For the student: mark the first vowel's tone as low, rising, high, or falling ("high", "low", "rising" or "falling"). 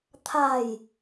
low